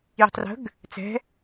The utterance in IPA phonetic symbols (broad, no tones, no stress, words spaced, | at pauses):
ji̤tˤrə̤ɡ | t͡sɛ̤